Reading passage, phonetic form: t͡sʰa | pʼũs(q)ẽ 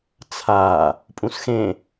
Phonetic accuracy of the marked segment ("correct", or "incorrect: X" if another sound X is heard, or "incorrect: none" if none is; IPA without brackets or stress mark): incorrect: x